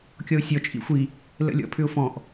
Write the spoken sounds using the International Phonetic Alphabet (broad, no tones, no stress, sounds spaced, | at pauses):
kʲ ɔ ʊ̯ sʲ ɔ t͡ʃʼ ḭ xʷ i | l ə̰ lʲ ɔ̰ pʰ ʏ ʊ̯ f ɔ̃ ʔ